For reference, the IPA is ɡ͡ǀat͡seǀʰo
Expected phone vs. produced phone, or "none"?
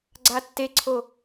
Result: t͡s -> tː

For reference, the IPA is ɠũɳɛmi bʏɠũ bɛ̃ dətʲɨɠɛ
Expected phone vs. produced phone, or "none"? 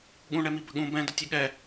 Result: ʏ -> ə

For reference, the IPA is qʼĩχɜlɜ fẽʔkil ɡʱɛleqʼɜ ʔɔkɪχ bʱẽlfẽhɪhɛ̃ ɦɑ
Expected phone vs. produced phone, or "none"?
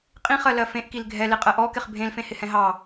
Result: none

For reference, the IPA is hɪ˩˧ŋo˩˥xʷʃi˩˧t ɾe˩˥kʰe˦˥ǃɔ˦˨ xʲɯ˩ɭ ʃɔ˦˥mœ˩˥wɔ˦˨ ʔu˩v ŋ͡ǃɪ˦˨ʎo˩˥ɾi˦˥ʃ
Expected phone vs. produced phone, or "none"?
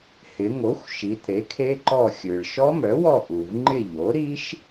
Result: none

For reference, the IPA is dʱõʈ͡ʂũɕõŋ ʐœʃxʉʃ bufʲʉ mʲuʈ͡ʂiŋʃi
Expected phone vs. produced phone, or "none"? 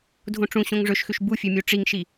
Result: œ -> ɵ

